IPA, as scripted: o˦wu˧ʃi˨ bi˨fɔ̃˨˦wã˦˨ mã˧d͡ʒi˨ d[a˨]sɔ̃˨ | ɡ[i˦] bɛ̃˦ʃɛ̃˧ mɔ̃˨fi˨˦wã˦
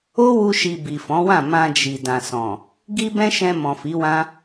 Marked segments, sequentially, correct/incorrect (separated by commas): incorrect, correct